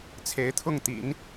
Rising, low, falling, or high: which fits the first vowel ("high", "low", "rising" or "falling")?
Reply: rising